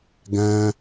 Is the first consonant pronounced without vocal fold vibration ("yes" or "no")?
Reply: no